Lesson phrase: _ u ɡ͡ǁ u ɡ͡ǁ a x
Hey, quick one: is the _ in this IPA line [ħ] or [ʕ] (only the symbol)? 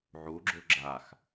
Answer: ʕ